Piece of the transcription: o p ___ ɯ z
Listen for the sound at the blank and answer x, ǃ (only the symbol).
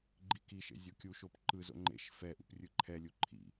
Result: ǃ